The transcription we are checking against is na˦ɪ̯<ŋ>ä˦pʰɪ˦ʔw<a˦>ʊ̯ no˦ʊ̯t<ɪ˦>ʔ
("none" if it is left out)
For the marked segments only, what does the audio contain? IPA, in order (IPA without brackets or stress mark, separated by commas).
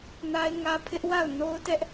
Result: ŋ, a˦˨, ɛ˦